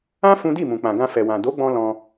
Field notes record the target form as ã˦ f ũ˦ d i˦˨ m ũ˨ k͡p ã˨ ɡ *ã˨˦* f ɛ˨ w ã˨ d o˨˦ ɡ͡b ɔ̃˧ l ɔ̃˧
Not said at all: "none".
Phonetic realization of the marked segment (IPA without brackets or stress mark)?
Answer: ã˧